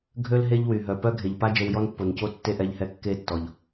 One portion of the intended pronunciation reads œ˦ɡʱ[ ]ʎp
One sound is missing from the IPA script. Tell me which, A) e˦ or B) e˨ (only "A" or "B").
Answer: B